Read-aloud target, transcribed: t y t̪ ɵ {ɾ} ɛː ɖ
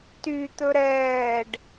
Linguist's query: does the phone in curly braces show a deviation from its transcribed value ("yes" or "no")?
no